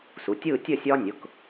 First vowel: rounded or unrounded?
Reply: rounded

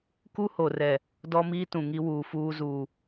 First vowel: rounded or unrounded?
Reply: rounded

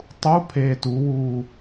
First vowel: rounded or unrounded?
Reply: rounded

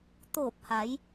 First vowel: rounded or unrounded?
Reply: rounded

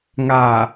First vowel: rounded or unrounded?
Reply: unrounded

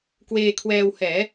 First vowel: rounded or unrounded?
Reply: unrounded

